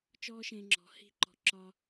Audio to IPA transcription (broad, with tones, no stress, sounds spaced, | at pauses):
t͡ʃ ɔː˦ ʃ ẽː˧ ŋ͡ǁ ɔ̤˨˦ h i̤˦ ǃ ɔ̤˧ ǁ ɒ˦